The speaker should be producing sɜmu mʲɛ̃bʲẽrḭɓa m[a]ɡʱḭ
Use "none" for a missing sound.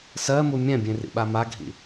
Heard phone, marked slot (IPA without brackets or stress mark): a